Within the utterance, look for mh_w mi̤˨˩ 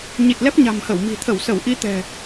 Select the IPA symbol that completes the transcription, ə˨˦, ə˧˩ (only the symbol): ə˧˩